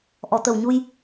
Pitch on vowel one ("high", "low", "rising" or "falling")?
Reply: low